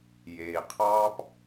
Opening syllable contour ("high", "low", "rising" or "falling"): low